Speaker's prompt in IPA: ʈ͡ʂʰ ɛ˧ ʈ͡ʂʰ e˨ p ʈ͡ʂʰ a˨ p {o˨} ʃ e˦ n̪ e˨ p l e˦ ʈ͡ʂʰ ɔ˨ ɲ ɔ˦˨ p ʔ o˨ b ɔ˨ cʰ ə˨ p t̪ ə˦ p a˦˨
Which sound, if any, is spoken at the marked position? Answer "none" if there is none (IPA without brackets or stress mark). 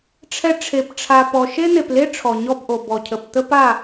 ɔ˨